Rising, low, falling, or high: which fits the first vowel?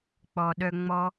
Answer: low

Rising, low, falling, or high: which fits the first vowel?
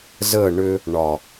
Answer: falling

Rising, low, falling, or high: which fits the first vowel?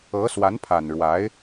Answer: rising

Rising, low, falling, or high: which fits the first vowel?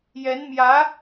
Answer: rising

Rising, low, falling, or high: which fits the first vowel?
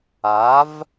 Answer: rising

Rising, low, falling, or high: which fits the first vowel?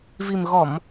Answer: low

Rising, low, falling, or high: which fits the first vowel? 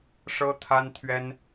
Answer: high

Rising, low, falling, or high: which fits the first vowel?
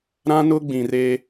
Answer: high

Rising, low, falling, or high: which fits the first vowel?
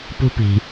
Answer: high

